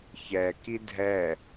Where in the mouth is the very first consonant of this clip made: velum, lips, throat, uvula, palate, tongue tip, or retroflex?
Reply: palate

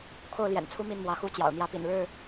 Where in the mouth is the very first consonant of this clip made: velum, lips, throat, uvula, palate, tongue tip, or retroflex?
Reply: velum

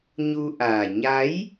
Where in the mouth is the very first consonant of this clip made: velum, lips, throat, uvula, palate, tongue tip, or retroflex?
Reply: palate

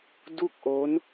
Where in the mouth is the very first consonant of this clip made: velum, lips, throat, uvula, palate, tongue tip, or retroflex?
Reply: tongue tip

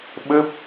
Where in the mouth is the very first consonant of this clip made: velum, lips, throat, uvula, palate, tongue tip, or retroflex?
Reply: lips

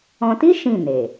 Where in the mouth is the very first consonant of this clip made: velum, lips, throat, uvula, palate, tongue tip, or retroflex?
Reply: tongue tip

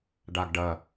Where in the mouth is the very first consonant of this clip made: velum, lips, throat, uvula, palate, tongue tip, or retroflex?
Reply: retroflex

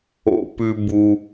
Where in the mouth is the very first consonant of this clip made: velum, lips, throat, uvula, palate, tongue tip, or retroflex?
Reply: lips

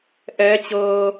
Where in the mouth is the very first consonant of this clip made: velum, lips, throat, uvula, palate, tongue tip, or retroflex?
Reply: throat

